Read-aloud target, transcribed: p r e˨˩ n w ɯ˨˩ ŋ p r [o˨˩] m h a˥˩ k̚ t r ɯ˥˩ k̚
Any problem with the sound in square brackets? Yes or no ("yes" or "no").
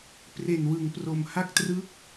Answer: no